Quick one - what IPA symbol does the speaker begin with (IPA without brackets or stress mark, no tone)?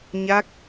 ɲ